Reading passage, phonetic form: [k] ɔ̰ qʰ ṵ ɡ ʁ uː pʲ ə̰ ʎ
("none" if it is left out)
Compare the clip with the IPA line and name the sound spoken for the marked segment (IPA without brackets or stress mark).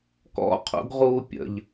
k